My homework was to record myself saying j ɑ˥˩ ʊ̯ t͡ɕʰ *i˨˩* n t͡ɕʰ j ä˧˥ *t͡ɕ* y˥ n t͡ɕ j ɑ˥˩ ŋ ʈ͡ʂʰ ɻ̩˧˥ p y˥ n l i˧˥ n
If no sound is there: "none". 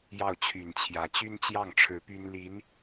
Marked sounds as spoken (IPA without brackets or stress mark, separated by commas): y˨˩, t͡ɕ